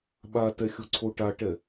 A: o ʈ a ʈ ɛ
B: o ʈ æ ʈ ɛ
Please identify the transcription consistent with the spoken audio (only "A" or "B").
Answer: A